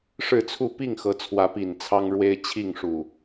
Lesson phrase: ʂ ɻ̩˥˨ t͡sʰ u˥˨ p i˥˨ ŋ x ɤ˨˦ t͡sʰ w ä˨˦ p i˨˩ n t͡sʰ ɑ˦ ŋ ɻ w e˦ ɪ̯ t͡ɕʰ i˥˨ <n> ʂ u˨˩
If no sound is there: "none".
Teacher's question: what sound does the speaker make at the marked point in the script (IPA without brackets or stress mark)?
ŋ